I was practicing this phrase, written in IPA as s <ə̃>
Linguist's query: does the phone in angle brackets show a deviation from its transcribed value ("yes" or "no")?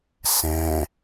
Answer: yes